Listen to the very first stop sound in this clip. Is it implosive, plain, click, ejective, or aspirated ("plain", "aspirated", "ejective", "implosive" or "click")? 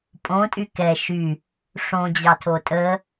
ejective